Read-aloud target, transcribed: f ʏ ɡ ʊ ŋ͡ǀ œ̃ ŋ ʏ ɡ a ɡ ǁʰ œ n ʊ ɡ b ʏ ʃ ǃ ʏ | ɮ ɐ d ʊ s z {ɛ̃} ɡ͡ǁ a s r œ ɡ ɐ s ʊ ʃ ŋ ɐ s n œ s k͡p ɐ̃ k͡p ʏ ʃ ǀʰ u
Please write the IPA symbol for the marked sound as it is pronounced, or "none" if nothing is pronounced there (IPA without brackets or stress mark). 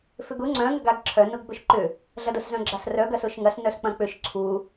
œ̃